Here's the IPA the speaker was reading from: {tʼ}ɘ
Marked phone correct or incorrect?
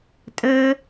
correct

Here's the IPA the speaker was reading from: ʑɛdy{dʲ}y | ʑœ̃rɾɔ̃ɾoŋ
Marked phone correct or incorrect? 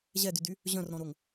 incorrect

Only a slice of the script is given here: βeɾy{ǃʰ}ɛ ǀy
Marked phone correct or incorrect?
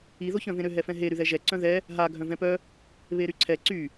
incorrect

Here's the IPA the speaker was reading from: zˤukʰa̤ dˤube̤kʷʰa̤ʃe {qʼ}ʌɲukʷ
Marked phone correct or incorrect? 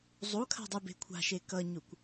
incorrect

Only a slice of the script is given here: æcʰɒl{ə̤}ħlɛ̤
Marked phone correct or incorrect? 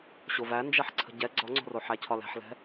incorrect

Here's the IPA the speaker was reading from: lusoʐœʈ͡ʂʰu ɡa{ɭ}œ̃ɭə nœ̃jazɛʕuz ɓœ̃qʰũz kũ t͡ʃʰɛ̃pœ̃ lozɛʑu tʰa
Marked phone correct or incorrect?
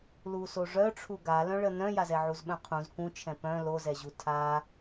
incorrect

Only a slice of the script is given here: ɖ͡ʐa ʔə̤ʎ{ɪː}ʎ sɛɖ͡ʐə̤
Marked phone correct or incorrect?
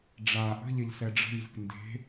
incorrect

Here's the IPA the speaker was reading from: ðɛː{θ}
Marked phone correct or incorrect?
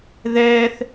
correct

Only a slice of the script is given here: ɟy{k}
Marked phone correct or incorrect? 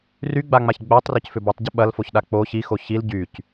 incorrect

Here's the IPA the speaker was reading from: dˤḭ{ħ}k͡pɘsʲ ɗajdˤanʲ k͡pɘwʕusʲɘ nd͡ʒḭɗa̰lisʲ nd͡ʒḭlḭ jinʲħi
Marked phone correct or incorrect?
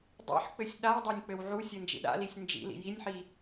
correct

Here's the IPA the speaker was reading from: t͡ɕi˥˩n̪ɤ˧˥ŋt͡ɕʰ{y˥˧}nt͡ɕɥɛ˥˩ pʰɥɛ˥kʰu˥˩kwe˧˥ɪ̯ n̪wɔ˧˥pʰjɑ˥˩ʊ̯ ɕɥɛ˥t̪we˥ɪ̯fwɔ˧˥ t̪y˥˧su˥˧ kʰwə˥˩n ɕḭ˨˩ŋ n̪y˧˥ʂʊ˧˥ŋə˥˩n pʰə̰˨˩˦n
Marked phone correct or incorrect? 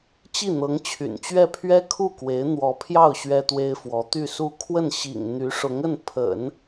incorrect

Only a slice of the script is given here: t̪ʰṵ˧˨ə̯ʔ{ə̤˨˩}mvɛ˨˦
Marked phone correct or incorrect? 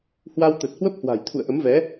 incorrect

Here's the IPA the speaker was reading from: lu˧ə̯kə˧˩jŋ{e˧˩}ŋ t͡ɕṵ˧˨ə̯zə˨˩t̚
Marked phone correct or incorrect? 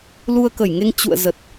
incorrect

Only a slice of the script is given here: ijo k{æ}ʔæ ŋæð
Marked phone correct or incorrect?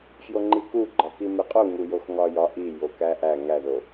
correct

